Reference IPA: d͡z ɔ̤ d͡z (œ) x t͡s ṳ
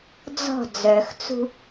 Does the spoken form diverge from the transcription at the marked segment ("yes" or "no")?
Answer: no